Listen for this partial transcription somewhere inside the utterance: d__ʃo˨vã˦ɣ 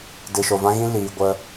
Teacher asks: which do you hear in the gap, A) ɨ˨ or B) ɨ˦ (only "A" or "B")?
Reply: A